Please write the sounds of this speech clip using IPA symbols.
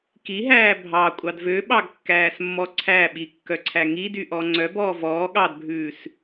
kiɦæː bʱɑkʷʼɑd vøɓɑɡkːæːsmːɔ ǀʰæɓikːœǀʰæ ŋidyʔɔ ŋ͡ǀœbɔː vɔː ɠɑdbʱʉːs

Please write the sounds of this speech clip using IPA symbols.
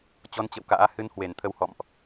t͡ɕɔ˨˦nt͡ɕə̰˧˨wka̰ː˧˥ hɨ˧nhwe˧˩nt̪ʰə˧w hɔ̰˧˨mʔ

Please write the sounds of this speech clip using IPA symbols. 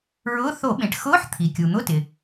ɹʊː˧˥˧ θo˧˩˧ɓẽ˩ʈ xʊː˧˥˧ħ t̪ʰi˩kʲu˩ n̪ʊ˧˥˧tɪ˩

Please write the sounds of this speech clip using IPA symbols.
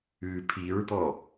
ʉ pʰiɹd̪ɔ

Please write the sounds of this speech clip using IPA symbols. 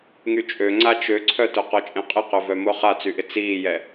ŋyt͡ʃʼø ŋ͡ǀat͡ʃøǀʰœtʊ qɔt͡ʃʼẽqʼɪqœ vœmʊ χat͡syʔɪ t͡siːjɛ

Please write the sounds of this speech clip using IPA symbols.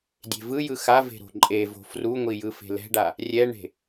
dʲe̤vɯjɯ xave̤ ɾo̤ǃʼevo̤ fruŋʷi jɯfe̤lɛ̤ɖa | rʲɛɳe̤

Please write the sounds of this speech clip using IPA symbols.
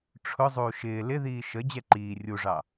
ʈ͡ʂʰʊ zˤuːʃɪː lɪðiː ʃə d͡ʑɛǃiː rʲuʐɑ

